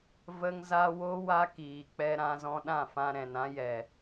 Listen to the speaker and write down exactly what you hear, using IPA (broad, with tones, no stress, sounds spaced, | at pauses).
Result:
v ə˧ ŋ z a˧ w o˦ w a˦ k iː˨ k͡p ɛ˧ ɾ ã˧ z ɔ̃˧ ɗ ã˦˨ f ã˧ ɾ ɛ̃˨ n ã˧ j ɛ˨